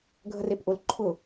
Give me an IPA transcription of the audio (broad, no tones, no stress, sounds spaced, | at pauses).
ɡʱ ə r e p ʔ ʊ l ǃʰ ʊ